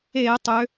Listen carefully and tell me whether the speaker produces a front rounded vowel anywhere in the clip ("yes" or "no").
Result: yes